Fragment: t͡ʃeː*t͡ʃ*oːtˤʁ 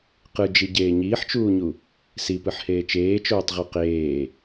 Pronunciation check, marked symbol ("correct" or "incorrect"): correct